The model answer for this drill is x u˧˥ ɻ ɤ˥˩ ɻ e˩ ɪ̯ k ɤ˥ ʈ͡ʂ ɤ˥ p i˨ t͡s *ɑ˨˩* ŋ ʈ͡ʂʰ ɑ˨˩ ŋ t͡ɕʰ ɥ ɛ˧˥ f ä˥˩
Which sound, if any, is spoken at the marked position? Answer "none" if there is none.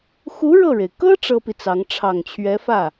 ɑ˧˥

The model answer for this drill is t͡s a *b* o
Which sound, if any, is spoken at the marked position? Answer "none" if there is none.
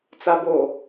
b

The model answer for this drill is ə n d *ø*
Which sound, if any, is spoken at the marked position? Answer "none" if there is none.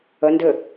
ɘ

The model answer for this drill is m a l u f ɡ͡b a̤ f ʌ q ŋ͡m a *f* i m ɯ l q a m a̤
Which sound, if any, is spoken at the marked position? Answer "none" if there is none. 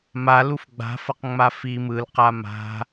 f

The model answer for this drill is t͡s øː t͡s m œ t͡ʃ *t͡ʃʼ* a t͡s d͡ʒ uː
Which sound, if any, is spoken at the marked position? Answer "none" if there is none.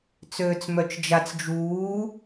d͡ʒ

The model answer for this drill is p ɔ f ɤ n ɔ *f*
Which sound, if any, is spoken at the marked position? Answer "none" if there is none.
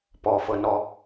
none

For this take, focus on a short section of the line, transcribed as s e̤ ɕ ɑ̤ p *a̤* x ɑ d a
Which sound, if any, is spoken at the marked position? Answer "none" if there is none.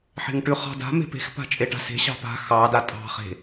a̤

